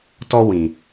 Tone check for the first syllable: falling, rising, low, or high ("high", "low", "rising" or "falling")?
high